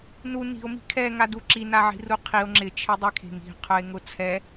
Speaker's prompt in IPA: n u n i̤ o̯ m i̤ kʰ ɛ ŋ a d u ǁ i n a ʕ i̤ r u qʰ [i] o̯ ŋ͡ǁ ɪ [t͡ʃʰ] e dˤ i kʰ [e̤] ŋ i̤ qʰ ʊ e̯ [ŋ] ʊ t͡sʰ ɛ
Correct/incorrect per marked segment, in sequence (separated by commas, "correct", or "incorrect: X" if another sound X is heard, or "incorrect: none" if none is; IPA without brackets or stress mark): correct, correct, correct, correct